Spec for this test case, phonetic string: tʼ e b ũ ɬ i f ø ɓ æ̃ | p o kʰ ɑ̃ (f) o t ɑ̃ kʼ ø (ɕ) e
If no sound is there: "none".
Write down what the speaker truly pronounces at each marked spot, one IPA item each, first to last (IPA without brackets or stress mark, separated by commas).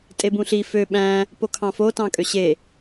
f, ɕ